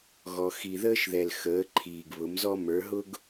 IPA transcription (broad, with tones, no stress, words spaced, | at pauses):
ɣɔ˧ xi˨ðəː˦ʃðɛ˨l xəː˨˦ǃʰiː˨ɡ βʊ˨˦mzɔ˦ mə˞˨˦ ɦʊ˦ɡ